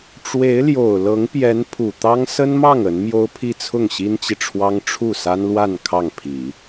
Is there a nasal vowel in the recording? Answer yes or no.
no